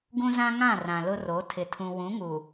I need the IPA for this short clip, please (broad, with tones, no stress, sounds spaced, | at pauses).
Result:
ɡ ũ˦ z ã˦ ŋ ã˦˨ r ã˨ l ʊ˦ r o˨˦ tʰ ɪ˨ tʰ ũ˨ w ũ˨˦ ŋ u˨